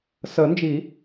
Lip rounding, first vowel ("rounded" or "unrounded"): unrounded